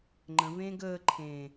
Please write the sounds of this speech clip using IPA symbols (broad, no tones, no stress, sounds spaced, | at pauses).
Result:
ŋ͡ǃ ə̃ v ẽː ɡ əː ǃʰ ẽː